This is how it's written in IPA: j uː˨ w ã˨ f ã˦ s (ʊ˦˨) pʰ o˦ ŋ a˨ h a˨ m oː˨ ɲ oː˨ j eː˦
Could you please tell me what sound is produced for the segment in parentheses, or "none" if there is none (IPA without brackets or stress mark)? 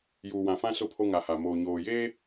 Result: ʊ˦˨